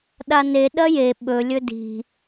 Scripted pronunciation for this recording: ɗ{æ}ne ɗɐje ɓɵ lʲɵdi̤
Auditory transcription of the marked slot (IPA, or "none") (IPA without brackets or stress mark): a